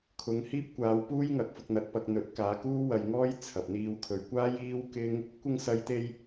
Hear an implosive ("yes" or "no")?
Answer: no